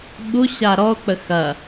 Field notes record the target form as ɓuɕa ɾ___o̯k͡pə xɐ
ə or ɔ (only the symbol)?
ɔ